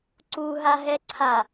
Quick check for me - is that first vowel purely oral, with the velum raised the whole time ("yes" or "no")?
yes